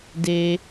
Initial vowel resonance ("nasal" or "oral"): oral